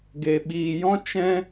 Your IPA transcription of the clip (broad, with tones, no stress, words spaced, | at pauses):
ɡe˨ɓiː˨jɔ̃˦ t͡ʃɛ̃˦